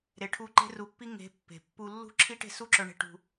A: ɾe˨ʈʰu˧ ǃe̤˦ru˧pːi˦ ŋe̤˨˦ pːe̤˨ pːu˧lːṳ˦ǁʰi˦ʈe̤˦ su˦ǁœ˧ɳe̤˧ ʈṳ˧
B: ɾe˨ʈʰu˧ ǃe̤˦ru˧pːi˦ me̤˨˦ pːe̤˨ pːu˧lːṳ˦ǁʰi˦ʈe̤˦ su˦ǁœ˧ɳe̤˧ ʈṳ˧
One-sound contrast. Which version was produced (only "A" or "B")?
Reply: A